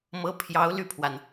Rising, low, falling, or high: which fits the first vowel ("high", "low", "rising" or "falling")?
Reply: rising